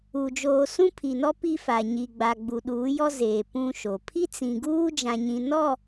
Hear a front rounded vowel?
no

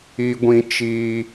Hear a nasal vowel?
yes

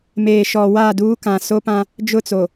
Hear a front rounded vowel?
no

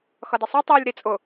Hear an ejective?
yes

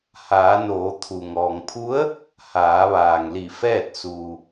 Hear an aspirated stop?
yes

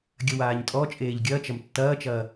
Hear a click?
no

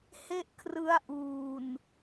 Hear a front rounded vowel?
no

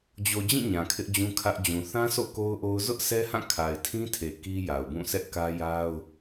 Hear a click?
no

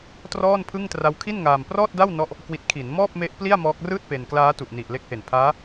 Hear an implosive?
no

